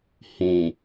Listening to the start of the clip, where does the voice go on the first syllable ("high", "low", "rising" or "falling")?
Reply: low